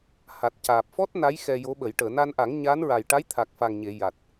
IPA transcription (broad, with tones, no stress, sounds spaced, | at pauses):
h a˨˩ t̚ c aː˨˩ p̚ f ɔ˦˥ t̚ n a˧˥ j x ɛ˧ j o˧˥ ɓ ə˨˩˦ j ʈ əː˨˩˨ n a˧ n ʔ a˨˩˦ ŋ ɲ a˧˥ n ɹ a˨˩ j ʈ a˧˥ j t̪ʰ a˨˩ k̚ f a˨˩ ŋ ɲ e˨˩˨ j a˨˩ t̚